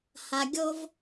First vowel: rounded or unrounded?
unrounded